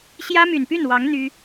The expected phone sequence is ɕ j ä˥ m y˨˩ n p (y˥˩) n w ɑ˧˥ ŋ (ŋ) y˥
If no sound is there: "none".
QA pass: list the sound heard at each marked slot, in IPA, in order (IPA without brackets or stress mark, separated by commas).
y˥˩, n̪